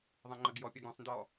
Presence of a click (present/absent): present